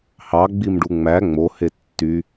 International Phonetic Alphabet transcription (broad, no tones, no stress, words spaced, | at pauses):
hɑɡ͡bimɖu ŋ͡mæ ŋ͡mohe tːy